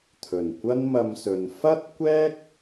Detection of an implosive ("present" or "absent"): absent